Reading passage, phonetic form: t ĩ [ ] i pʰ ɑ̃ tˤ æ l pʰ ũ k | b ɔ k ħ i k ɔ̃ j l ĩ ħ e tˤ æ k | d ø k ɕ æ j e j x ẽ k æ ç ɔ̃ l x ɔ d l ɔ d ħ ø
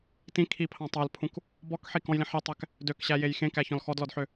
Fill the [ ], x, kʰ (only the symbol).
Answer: kʰ